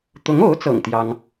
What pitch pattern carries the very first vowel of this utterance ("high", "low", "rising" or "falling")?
rising